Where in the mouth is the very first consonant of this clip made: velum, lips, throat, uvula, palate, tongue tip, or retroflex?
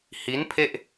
throat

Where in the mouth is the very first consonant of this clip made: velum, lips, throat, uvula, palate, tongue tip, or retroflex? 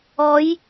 palate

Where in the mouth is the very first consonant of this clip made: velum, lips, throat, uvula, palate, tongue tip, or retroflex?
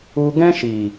velum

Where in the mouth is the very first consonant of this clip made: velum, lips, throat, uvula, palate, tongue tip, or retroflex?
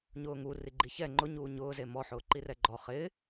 palate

